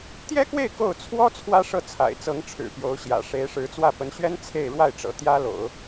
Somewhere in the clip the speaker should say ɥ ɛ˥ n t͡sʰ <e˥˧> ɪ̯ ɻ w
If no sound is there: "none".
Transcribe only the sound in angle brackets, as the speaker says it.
e˥˧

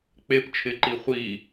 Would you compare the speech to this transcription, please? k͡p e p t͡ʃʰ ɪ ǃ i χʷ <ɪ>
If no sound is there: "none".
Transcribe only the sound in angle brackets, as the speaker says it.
i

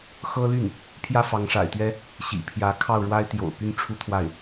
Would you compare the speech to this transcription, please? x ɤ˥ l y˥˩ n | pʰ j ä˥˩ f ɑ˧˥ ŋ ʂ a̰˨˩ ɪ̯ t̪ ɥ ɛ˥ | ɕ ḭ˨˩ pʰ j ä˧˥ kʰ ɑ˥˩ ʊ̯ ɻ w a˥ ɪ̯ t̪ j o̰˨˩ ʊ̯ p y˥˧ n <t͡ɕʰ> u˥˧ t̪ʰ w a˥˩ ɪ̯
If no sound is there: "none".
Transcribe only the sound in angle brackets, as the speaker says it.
ʈ͡ʂʰ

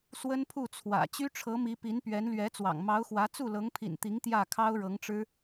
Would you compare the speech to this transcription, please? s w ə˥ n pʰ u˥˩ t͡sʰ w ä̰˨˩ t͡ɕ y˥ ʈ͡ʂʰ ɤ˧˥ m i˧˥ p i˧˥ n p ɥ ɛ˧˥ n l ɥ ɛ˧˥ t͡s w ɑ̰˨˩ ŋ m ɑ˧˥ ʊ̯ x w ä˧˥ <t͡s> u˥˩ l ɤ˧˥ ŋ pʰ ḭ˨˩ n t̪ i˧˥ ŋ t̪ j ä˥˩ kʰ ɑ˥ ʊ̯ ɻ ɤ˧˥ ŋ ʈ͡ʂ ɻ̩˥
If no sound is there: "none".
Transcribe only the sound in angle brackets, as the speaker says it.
t͡s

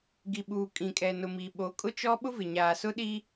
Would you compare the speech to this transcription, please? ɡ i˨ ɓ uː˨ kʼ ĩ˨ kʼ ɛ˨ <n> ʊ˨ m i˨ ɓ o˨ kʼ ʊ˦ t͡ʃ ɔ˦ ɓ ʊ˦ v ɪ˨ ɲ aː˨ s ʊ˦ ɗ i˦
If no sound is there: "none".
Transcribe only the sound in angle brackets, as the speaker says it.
n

